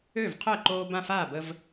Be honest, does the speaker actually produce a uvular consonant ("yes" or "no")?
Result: yes